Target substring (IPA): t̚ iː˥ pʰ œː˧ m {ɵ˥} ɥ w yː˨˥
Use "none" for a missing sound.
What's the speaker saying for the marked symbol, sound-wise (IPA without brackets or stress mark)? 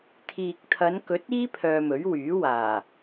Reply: ɵ˨˥